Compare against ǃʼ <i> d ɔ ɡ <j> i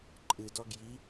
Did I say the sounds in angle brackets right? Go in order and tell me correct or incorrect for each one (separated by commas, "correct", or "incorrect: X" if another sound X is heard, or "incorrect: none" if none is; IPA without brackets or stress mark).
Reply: incorrect: ɨ, correct